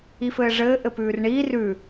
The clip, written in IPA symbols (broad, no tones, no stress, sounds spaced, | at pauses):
i f ɘː ʐ ɘː ʔ ɘ p ʉː r ɳ iː r ʉ